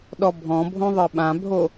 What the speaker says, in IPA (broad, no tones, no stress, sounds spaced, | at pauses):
ɗ ɔ bʱ ɔ̃ bʱ õ ðˤ ɯ ɓ ã bʱ o